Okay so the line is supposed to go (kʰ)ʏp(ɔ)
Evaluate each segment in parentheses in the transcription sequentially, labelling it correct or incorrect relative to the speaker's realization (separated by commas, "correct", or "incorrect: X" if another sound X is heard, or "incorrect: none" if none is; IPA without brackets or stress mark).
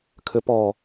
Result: correct, correct